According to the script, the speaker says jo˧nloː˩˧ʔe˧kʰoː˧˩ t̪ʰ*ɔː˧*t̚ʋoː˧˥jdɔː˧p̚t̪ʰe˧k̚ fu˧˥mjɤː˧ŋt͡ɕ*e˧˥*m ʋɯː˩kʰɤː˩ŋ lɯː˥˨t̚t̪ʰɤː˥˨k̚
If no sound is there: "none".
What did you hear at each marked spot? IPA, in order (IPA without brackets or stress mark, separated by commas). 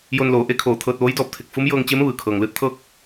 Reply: ɤː˧, e˧˥